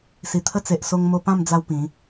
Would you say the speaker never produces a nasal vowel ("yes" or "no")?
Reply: no